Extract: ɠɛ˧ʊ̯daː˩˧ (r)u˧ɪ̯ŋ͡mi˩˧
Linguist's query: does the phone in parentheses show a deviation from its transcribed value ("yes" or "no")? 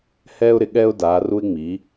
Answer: no